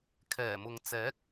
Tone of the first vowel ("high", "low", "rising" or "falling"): low